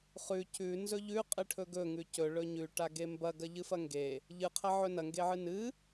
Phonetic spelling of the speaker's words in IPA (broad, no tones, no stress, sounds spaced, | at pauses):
χ ʉ c ʉ n z ɵ ʎ ʉ qʼ ɨ ʈʰ ɵ ɡ ɵ ŋ ʉ c ɵ ɭ ɵ ɲ ʉ ʈ a ɡ e m b ɐ ɡ ɐ ʎ ɨ f ɐ ŋ ɡ e | ʎ ɨ qʰ ɐ ʕ ɵ n ɐ ŋ ɡ e ʕ ɨ n ɨ